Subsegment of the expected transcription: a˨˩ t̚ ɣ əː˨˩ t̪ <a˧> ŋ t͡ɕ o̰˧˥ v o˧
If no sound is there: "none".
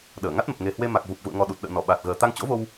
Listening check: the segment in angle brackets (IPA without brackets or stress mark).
a˧